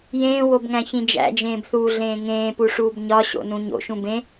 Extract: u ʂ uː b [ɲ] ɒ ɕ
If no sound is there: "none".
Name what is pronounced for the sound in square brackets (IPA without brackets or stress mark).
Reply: ɲ